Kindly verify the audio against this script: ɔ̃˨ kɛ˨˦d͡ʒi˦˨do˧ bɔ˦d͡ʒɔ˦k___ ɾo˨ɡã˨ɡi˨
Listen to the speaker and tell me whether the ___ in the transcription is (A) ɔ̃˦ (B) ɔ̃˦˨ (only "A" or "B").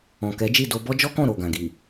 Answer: B